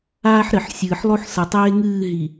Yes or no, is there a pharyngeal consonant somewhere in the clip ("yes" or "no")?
yes